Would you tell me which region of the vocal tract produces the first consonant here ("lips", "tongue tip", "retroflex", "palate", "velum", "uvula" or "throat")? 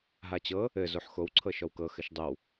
throat